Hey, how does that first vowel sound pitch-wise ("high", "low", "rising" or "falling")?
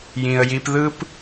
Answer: low